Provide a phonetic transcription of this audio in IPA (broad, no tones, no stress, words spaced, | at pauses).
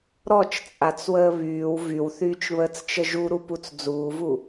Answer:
ɾɔt͡ʃt͡sʼat͡swəː βyːw vywθyːt͡ʃβəːt͡st͡ʃə ʒuɾuput͡s d͡zuːvu